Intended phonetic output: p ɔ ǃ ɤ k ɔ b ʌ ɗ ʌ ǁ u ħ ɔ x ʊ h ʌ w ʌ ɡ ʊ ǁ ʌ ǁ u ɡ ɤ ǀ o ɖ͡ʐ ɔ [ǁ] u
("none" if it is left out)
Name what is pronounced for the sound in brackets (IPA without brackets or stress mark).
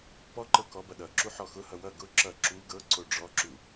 ǁ